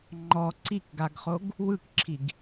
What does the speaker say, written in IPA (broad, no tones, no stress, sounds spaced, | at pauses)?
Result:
ŋ͡ǃ ɔ ǀ i k ɡ a ɡ χ o ɡ | w ɯ k ǁʰ i ɡ